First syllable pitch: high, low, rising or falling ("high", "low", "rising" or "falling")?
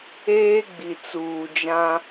high